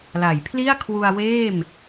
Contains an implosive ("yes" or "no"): no